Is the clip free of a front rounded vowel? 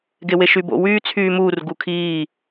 no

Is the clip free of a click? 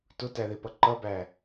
no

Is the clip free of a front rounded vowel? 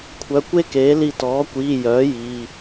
no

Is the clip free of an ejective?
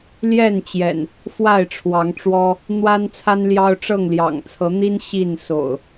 yes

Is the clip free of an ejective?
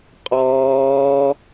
no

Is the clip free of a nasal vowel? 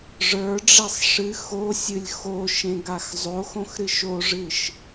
no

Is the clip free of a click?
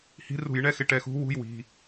yes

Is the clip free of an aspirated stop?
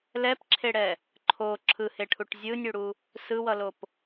no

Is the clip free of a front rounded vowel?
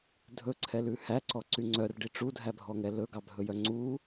no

